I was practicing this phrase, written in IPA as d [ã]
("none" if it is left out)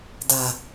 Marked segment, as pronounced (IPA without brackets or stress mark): a